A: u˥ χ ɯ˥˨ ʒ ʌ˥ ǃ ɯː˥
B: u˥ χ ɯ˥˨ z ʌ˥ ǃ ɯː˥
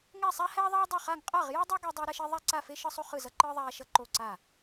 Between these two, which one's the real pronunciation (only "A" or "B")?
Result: B